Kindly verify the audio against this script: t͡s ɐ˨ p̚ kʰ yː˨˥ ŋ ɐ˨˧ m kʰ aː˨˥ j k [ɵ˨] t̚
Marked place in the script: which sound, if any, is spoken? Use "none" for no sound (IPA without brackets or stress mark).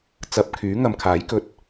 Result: ɵ˧